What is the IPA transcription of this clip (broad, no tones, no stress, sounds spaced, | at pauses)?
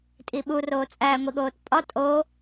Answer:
tʼ i ɓ u r oː t͡sʼ æː ŋʷ i ɠ oː t pʼ ɒ tʼ o